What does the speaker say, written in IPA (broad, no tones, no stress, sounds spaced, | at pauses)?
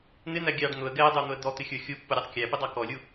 n̪ ɪ n̪ æ ɡʲ ɑ ɖ n̪ ʊ ə̯ ɡ ɛ ə̯ dˤ ə˞ n̪ ʊ ə̯ d̪ ɔ t̪ ɪ xʲ ə˞ xʲ u pː ʊ ɾʲ ɔ tˤ kʲ æ p ɪ dˤ ɑ k ɔ lʲ u